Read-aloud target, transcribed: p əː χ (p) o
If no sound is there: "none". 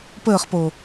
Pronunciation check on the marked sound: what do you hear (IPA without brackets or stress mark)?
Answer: p